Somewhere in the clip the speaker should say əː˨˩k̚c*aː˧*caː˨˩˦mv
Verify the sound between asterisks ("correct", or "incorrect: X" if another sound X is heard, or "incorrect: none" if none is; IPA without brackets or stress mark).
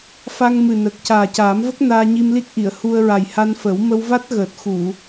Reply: incorrect: aː˨˩